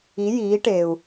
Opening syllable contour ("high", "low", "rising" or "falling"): rising